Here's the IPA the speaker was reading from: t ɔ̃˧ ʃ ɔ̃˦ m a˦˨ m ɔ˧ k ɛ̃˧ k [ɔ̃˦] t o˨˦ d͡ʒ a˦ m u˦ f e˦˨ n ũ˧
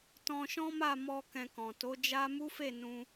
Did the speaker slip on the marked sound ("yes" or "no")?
yes